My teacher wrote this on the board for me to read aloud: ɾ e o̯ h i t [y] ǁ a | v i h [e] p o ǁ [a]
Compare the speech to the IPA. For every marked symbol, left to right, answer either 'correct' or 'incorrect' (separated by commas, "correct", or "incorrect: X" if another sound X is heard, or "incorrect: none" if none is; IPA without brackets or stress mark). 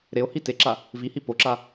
incorrect: e, incorrect: i, correct